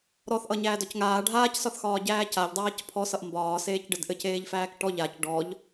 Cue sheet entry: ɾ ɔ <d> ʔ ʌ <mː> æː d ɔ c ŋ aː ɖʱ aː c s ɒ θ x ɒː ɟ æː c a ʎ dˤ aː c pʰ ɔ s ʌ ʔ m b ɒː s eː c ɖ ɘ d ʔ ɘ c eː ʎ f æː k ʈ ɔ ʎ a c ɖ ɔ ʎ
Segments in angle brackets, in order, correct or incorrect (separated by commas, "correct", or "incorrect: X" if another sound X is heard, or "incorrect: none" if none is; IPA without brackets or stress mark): incorrect: θ, incorrect: ɲ